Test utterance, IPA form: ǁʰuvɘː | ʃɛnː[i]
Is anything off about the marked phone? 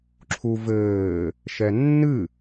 yes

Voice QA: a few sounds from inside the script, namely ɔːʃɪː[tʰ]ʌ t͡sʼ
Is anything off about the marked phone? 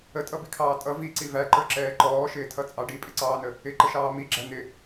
no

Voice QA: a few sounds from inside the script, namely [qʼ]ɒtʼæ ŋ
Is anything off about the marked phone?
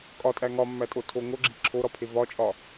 yes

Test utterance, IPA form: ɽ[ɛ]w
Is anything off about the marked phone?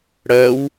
yes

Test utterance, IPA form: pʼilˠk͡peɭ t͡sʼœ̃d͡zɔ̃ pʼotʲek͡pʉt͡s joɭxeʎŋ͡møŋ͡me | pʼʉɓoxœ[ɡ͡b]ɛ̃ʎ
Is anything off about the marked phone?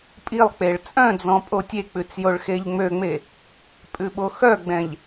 no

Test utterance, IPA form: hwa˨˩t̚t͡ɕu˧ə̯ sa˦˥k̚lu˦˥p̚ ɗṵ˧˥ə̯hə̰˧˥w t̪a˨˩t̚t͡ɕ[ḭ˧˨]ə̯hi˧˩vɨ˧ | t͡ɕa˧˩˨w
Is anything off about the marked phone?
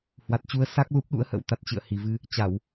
yes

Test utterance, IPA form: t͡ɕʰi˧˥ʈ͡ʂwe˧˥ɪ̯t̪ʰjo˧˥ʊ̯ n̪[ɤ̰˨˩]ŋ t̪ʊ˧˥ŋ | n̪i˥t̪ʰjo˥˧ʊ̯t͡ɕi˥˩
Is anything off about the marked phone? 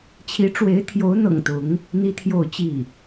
no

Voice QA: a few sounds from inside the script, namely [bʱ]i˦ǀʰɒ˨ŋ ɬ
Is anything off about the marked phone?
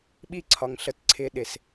yes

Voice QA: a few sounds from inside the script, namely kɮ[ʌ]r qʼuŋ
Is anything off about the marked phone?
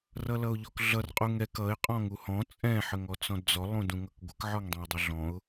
no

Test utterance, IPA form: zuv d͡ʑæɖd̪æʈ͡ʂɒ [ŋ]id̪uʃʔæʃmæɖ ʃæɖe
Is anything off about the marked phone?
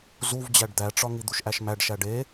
no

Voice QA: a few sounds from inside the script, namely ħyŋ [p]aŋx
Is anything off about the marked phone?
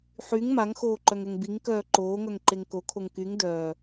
yes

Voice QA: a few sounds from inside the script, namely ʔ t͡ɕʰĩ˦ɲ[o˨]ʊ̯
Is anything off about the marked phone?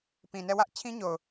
no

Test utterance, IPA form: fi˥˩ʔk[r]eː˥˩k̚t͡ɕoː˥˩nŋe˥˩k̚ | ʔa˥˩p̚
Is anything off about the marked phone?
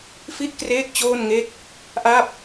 no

